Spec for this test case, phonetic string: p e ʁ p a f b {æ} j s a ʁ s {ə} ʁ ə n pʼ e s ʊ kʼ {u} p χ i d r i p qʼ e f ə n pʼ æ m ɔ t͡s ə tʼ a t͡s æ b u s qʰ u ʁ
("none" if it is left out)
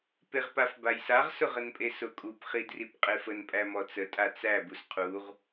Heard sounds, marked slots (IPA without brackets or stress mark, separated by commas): a, ʊ, u